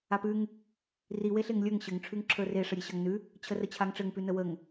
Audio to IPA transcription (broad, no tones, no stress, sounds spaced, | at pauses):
a p ʉ ŋ | r i w e ɬ e ŋ lʲ ə˞ ŋ ɕ ɘ ŋ ʈ͡ʂʰ ʉ ŋ ǁʰ ə˞ r e ʂ ə ɾʲ e ɕ ʌ ŋ n ʉ | t͡ɕʰ ə r ə t͡ɕʰ a ŋ ʈ͡ʂ ɘ ŋ p ʉ n ə w ə ŋ